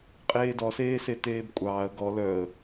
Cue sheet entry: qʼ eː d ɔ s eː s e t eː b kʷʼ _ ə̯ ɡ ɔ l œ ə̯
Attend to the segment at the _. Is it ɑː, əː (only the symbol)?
ɑː